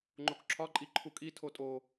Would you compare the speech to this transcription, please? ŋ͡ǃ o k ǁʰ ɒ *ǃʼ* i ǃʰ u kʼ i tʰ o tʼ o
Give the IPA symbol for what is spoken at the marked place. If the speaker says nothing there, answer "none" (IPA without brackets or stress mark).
ǃʼ